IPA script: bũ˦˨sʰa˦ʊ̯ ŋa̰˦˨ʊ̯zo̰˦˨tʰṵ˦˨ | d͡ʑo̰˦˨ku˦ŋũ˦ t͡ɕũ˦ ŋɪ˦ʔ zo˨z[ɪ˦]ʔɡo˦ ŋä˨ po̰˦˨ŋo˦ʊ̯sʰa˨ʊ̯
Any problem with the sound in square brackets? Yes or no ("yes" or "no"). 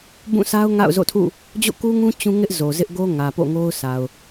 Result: no